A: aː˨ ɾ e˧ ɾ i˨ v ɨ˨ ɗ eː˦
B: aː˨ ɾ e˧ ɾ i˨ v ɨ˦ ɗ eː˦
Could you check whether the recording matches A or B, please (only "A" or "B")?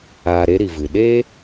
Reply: A